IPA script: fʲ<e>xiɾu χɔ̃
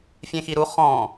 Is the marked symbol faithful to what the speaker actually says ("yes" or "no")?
no